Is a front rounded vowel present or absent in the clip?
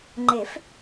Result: absent